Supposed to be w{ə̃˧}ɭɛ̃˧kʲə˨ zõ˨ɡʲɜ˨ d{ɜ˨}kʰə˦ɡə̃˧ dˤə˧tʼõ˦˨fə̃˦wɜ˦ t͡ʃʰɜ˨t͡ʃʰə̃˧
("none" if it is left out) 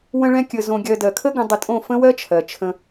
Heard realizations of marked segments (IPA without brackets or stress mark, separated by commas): ə̃˧, ɜ˨